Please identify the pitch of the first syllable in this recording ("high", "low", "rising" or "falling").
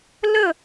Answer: falling